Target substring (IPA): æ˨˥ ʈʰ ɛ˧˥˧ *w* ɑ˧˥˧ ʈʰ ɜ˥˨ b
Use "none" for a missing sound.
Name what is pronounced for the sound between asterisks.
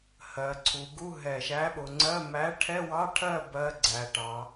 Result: w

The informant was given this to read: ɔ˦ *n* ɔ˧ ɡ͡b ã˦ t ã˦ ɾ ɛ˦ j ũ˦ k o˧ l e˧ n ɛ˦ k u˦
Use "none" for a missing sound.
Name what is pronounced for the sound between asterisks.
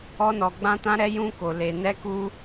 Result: n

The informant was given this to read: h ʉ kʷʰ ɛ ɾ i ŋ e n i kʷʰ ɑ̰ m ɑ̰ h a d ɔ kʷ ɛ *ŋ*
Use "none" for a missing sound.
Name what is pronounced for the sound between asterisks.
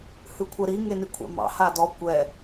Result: none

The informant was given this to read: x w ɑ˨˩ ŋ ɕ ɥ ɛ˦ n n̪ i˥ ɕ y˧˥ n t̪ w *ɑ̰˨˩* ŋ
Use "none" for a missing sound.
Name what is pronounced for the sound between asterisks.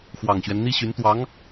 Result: ɑ˧˥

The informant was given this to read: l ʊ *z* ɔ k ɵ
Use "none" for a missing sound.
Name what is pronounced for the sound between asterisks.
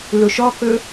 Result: ʃ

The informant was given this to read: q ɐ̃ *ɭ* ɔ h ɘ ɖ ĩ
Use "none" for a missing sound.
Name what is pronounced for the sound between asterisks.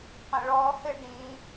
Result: ɭ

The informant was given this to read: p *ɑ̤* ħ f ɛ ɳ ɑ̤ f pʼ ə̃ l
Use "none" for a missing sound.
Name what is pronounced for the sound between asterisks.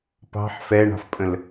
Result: ɑ̤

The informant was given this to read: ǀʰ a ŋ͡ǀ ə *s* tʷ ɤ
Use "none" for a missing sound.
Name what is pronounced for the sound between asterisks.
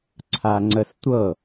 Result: s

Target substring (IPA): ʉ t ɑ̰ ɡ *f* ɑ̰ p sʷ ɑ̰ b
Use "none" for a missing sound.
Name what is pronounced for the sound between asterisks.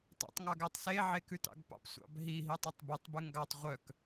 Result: p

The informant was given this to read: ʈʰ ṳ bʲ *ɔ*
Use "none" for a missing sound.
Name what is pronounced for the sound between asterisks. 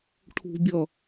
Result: ʌ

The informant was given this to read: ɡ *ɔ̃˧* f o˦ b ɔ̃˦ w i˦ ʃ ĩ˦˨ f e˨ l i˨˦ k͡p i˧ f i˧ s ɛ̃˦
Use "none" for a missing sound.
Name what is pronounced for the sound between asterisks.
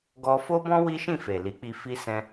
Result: ɔ˧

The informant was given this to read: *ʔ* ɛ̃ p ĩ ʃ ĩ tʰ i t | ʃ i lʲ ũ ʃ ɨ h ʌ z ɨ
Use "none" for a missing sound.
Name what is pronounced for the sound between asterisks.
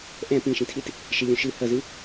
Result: ʔ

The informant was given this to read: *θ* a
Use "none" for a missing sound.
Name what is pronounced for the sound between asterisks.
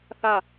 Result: θ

